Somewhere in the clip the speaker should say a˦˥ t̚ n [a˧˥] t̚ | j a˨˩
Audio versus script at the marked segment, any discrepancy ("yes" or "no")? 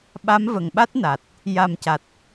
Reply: yes